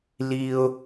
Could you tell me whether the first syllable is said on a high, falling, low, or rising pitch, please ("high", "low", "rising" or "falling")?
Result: high